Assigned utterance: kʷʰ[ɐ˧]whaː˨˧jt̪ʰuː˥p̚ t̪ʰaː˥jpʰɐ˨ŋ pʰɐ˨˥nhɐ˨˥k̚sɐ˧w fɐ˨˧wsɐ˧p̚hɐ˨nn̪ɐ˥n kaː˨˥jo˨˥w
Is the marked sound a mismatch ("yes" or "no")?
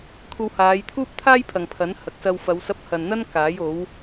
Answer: no